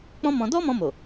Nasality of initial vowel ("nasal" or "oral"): nasal